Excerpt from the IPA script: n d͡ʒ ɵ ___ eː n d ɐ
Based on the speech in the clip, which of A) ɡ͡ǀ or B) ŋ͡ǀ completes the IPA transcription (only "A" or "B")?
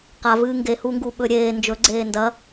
A